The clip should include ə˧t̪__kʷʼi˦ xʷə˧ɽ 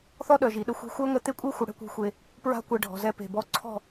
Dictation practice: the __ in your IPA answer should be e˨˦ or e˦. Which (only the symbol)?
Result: e˦